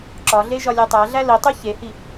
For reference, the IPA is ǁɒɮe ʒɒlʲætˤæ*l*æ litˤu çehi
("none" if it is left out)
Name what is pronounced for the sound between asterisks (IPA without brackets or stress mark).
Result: ɮ